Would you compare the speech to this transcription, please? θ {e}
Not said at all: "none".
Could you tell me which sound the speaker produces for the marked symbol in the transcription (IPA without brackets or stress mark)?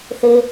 e